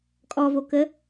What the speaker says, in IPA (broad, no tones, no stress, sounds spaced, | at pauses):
kʼ ɔ v o k ə